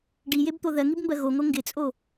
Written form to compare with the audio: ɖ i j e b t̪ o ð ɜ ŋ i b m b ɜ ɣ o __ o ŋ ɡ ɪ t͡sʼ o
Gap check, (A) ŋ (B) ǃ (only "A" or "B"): A